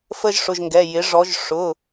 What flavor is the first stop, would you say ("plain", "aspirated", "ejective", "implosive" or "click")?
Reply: plain